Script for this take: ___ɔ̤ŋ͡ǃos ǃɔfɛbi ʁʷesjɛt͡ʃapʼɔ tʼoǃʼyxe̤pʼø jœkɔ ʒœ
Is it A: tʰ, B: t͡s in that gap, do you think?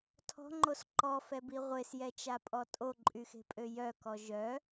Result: A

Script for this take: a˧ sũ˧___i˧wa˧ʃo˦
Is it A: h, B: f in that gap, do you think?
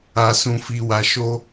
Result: B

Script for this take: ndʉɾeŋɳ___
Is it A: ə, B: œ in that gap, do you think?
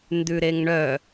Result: B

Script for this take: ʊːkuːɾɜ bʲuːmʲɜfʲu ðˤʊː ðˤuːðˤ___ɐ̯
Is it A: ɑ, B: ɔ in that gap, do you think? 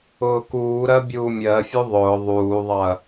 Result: A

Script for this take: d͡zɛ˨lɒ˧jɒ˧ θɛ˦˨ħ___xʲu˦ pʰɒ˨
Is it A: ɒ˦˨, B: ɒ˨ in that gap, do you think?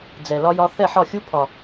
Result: A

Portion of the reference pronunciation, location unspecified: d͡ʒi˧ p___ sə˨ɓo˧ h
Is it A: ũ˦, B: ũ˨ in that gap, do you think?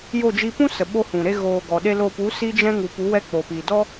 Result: A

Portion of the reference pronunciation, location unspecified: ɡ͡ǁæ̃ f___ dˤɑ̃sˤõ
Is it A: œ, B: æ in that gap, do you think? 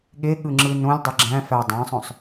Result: B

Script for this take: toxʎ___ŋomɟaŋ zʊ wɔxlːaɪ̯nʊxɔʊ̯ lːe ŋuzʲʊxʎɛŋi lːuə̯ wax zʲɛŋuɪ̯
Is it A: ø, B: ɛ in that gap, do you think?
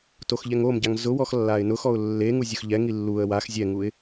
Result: B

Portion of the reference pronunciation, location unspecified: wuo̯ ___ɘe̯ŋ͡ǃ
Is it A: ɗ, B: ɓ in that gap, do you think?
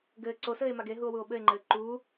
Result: B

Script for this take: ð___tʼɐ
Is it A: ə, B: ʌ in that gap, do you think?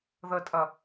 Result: A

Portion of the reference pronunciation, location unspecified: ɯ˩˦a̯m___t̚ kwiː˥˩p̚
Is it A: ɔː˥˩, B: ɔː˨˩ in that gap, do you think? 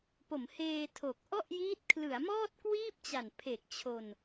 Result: A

